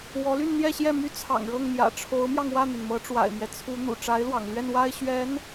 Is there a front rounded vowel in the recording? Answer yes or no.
yes